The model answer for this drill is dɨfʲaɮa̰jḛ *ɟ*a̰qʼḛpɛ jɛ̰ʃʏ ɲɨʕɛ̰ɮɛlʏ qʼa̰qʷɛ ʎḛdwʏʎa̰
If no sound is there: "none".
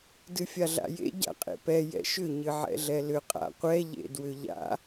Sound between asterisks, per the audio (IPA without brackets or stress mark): ɟ